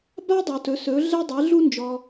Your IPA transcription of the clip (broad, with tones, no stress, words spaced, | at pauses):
ba˥dˤu˩tɵ˩˧ sɵ˩˧ɮɛ˧dˤe˩˧ ɮu˧nd͡ʒɔ˩